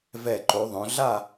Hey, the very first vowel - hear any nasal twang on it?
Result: no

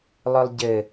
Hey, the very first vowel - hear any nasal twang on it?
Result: no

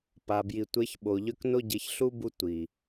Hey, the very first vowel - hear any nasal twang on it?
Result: no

